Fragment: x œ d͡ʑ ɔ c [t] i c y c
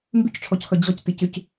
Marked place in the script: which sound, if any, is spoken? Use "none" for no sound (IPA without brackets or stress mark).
t